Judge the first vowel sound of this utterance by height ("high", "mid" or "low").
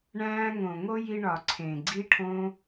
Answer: low